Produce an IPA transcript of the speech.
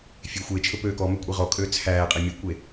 fʲ e xʷ e t͡ʃʰ ɵ p øː k ɔ m œ kʷʼ i ʁ ɔ kʼ øː t͡sʰ æː qʼ e mʲ ʉ kʷ e

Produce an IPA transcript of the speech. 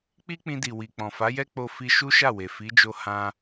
k͡p i˦ k͡p ĩ˧ d i˨ w i˨ k͡p ɔ̃˨ f a˨˦ j ɛ˦ k͡p o˧ f i˧ ʃ u˦ ʃ a˦˨ w e˨ f i˨˦ d͡ʒ o˧ h ã˦

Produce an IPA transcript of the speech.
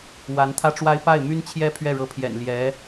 w a˧˥ n t̪ʰ ä˥ ʈ͡ʂ w a˥ ɪ̯ p a˥˩ ɪ̯ m y˥ n t͡ɕʰ j ɛ˥ pʰ ɥ ɛ˥˩ ɻ ɤ˧˥ pʰ j ɛ̰˨˩ n l j ɛ˧˥

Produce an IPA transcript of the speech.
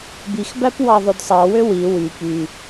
b i x b æ p w ɑ ðˤ o d sˤ ɑ w ø w i w y p y

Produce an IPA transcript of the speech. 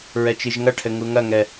ɹ ɛ t͡ʃ i ʒ ŋ ɐ ʈʰ ɘ ŋ u ŋ ɐ ŋ ɛ

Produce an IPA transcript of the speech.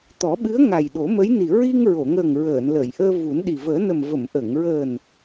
t̪ ɔ˨˩˦ ɓ ɨ˧˥ ə̯ ŋ a˨˩ j ɗ o˨˩˦ m ə˧˥ j n i˨˩ ɹ i˧ ŋ ɹ o˨˩˨ ŋ əː˨˩ ŋ ɹ əː˨˩˨ n l əː˨˩˨ j ʔ əː˧ v u˨˩˦ n ɗ i˨˩ v əː˨˩˦ n ə˨˩ m v ə˨˩˨ m ʔ ə˨˩˨ ŋ ɹ əː˨˩ n

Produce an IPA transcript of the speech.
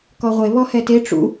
k ɔ ʁʷ e β ɔ h ɛ t e ʈ͡ʂ ṵ

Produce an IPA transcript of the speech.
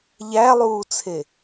ʎ æ lˠ uː t͡sʰ e

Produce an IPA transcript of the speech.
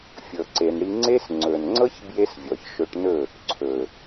fʲ ɤ˧ ǀ e˧ n ɽ i˦ ŋ͡ǀ e˦ s ŋ͡ǀ ɵ˨ n ŋ͡ǀ ɤ˦ ç b j e˦ s vʲ ɔ˨ ç ʃ ɵ˧ ʈ n ɵ˦˨ | ǀʰ ɵ˨

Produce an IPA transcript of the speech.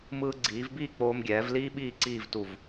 m ɯː˧ ɡ͡ǀ iː˩˧ v b iː˥˧ k͡p oː˧ m ɡʲ ɛː˩˧ v l iː˥ ɓ iː˥˧ ǀ iː˥˧ v t u˧˩ v

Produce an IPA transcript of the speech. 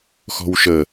x ɔ̤ w ʃ ə

